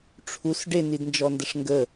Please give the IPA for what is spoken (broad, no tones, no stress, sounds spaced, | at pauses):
ʈ͡ʂʰ u s ɖ e n i d n d͡ʒ ɔ n d ə ʂ ŋ ɡ ə